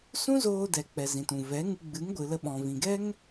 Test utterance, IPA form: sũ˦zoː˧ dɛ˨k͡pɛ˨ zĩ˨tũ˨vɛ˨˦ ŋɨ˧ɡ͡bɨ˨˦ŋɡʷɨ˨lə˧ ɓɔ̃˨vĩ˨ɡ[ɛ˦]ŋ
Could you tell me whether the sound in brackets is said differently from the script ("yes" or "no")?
no